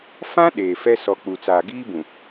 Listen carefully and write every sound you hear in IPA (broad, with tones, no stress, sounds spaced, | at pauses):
f ã˦ ɗ eː˨ f ɛ˦ s ɔ˨ k͡p u˨ t͡s aː˨ ɡ iː˦ b ũ˨